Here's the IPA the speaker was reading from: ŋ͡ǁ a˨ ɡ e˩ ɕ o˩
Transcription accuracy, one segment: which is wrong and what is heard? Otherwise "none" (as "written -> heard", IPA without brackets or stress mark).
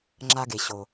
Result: none